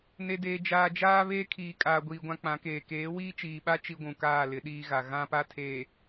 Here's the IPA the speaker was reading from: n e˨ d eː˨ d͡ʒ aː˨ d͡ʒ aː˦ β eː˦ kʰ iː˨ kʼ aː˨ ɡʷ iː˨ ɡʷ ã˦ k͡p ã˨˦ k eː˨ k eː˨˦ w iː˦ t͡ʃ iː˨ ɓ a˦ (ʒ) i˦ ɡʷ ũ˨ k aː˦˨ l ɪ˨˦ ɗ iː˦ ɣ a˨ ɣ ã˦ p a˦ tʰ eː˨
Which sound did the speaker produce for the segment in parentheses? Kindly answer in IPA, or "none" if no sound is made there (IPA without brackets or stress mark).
t͡ʃ